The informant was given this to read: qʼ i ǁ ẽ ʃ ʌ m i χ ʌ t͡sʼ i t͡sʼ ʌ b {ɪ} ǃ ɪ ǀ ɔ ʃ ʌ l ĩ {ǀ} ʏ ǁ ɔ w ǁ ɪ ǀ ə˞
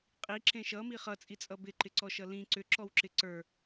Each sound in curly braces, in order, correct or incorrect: correct, correct

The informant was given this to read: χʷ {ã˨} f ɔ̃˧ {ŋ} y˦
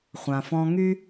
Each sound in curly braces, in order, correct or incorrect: correct, correct

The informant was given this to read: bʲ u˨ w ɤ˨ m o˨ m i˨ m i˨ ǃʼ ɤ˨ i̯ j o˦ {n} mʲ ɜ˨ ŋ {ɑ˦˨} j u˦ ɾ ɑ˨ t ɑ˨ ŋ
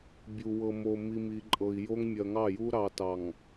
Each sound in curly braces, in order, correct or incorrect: incorrect: ŋ, correct

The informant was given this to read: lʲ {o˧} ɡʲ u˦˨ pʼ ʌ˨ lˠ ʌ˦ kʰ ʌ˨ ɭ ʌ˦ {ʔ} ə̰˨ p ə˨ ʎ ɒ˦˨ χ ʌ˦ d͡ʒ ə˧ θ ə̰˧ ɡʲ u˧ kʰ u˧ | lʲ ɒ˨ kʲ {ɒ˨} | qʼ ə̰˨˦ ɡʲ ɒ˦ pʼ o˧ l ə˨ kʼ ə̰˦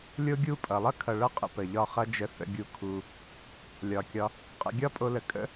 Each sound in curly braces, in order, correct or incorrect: incorrect: o˦, incorrect: qʼ, incorrect: ɒ˧

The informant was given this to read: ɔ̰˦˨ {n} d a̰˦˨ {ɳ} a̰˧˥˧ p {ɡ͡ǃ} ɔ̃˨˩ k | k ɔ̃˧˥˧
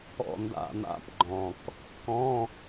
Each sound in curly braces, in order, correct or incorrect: correct, incorrect: n̪, correct

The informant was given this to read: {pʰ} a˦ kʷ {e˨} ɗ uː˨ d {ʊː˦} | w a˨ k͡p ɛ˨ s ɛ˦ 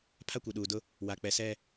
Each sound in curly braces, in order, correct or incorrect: correct, incorrect: i˨, incorrect: ʊ˦

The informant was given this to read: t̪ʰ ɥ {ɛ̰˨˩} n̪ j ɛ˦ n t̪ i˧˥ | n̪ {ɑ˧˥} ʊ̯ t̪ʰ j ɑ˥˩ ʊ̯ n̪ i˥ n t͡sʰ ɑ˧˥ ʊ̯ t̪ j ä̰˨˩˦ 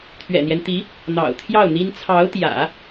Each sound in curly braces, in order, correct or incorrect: correct, incorrect: ɑ̰˨˩

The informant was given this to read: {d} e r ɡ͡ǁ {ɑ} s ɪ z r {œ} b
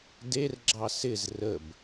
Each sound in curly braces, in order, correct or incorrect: correct, correct, incorrect: ə

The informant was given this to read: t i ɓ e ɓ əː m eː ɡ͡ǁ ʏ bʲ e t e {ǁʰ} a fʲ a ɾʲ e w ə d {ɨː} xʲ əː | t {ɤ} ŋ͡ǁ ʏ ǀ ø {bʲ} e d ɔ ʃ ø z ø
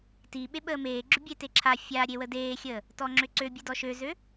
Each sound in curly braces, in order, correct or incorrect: correct, incorrect: eː, incorrect: ɔ, correct

